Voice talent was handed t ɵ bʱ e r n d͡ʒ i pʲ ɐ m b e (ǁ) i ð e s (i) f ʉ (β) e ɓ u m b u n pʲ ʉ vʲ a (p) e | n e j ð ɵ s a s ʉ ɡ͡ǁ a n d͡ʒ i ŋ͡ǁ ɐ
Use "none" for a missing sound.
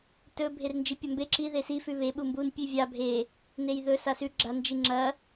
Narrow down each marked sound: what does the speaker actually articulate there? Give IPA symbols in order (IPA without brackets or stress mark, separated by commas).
ǁ, i, β, bʱ